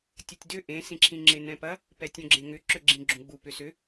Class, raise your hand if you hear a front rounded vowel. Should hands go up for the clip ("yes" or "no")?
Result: yes